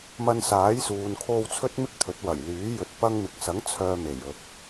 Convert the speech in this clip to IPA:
m ɐ˧ n s aː˨˥ j s uː˨ n kʰ o˧ w t͡sʰ ɵ˥ t̚ m ɪ˥ k̚ t̪ʰ ɵ˨˥ t̚ w ɐ˨˩ j l yː˨˥ j ɵ˨˥ t̚ p ɐ˧ ŋ m ɪ˨ k̚ s ɐ˨˥ ŋ t͡sʰ œː˧ m e˨˩ j ɵ˨ t̚

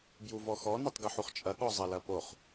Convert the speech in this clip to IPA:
b j u v ɔ x ɔ n e tˤ ɡ ɨ ħ u χ t͡ʃʼ ɐ ɠ ɔ zˤ ɐ l ɐ p o χ

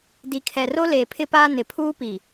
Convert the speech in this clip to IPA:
d i˨ kʰ ɛ˨ r o˦ l eː˨ pʰ ɪ˦ p aː˦ n ɪ˨ pʰ uː˦ p i˨

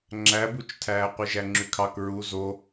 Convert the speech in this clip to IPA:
ŋ͡ǁ æ b u t͡ʃ tʰ æː qʷ i ʒ æ ŋ͡ǁ y kʰ ɑ k ɹ u z o

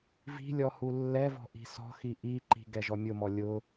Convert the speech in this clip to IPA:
v i̤ lʲ ɔ h u lː ɛ v ɔ̤ ʔ i̤ s ɔ̤ x i ʔ i ǃ i̤ ɡ ɛ ʒ ɔ mʲ ʊ m ɔ lʲ ʊ

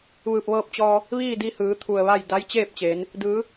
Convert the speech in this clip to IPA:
ʋ ɯː˧˩ p̚ ʋ ɤː˧ p̚ t͡ɕ ɔː˧ | ʋ iː˥˨ d i˧ h ɯː˩˧ t̪ʰ u˧˩ ə̯ ʋ a˥˨ j d a˧˥ j t͡ɕ eː˥˨ p̚ t͡ɕ eː˩˧ n | d ɯː˩˧

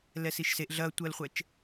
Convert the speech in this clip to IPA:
l ɛ s i ʃ s e ʔ ɮ ɐː tʷ əː l χʷ ɛ t͡ʃ

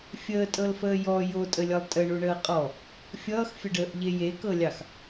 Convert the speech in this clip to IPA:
fʲ əː tʼ ɤ l f əː j ɔ j o tʼ ə lʲ ʌ lˠ tʼ ə ɳ u ɳ əː qʼ ɔ | fʲ ʌː x fʲ ə ɖ əː ʔ ʎ e j e k ɤ lʲ ɑ x

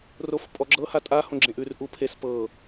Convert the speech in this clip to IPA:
r o f pʼ ɔ ɡ͡ǁ ɤ h a tʼ a h õ ɡ͡ǁ ẽ ʔ ʉ r ʔ u pʰ e s p ɤ

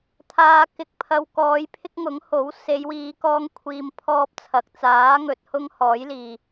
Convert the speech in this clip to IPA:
t̪ʰ aː˨ k ɪ˨ k̚ pʰ ɐ˨ w k ɔː˨˧ j pʰ ɪ˥ k̚ ŋ ʊ˨˥ ŋ h o˨˥ w s e˨˧ j w iː˨˧ k ɔː˥ ŋ kʷʰ iː˧ m pʰ ɔː˥ p̚ t͡sʰ ɐ˨ k̚ t͡s aː˨˥ ŋ ɵ˨ t̚ h ʊ˥ ŋ h ɔː˨˥ j l iː˨

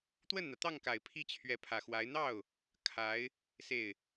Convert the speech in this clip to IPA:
t̪ w ə˥˩ n n̪ ä˩ t̪ ɑ˥˩ ŋ k a˨˩ ɪ̯ pʰ i˥ t͡ɕʰ ɥ ɛ˧˥ pʰ ä˨˩ x w a˧˥ ɪ̯ n̪ ɑ˥˩ ʊ̯ | kʰ a˧˥ ɪ̯ | s e˥˩ ɪ̯

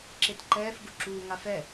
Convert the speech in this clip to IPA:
ǁ e t ǃ ɛː f ɡ u ǁ uː ŋ a f ɛ

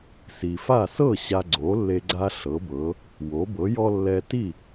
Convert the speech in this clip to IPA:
s i˩ f a˥˩ s ɤ˥˩ ɕ a˧ ɡ͡ǀ o˩˥ lː e˧ ɡ͡ǀ a˥ ɬ ɤ˩˥ b ɤ˩˥ | w o˩˥ b ɤ˩˥ j ɔ˥ lː ɛ˧ t i˥˩

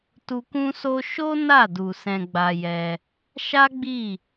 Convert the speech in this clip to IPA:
t u˧ k ũ˦ s o˦ ʃ o˦ n a˦˨ d u˨ s ɛ̃˧ ɡ͡b a˧ j ɛ˧ | ʃ a˦ ɡ͡b i˦˨

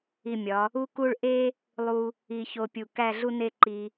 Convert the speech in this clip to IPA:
i˧˩ mʲ ɒ˩˧ | u˥ k u˥˧ ɭ ʔ e˥ | lˠ u˧ | i˧ ç o˧ pʲ u˧˩ k æ˥˧ ɮ u˥ n e˥˧ ǃ i˧

